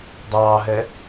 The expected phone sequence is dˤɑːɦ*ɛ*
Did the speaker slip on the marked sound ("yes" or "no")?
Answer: no